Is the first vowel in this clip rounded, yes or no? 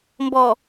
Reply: yes